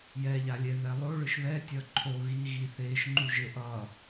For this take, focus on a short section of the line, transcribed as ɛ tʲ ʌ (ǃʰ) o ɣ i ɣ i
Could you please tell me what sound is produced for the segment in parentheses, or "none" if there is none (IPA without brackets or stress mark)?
ǃʰ